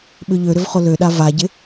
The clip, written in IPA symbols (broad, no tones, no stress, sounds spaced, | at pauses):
ɓ ʏ ʎ ø ɾ ʏ v χ o l ø ɗ a v a ɟ ɪ